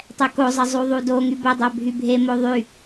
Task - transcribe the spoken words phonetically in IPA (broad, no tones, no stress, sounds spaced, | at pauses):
tˤ ɛ k o zˤ ə zˤ u ðˤ u d o ŋ y b ə dˤ ɛ bʱ y bʱ e m o ðˤ y